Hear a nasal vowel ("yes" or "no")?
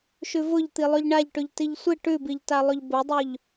no